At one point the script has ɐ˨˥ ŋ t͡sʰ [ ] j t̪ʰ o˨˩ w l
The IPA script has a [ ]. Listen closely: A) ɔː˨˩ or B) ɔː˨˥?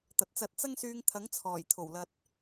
A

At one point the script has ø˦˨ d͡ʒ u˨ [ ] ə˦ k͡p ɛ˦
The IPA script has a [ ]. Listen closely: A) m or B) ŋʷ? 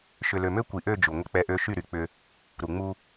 B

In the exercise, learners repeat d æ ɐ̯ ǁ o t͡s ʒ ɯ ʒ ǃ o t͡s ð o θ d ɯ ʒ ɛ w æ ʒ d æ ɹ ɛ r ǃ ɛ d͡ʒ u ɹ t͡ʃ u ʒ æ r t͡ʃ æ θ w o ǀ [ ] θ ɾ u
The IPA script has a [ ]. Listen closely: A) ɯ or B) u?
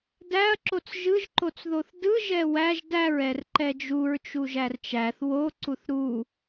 B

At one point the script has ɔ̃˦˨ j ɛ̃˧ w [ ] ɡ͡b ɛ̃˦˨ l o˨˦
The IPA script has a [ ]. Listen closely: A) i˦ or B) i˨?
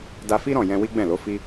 A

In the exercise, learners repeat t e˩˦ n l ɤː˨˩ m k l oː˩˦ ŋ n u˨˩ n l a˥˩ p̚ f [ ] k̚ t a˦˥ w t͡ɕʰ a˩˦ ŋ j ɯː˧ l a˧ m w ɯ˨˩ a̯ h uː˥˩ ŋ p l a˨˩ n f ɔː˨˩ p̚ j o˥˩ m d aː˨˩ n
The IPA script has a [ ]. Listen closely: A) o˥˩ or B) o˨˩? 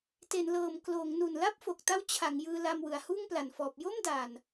B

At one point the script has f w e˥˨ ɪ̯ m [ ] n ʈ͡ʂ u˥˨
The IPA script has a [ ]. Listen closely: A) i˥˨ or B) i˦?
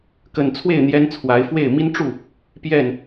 B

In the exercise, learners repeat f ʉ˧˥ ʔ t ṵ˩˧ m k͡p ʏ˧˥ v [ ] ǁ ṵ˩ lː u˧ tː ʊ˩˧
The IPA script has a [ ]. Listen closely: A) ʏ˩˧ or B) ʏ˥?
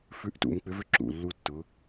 B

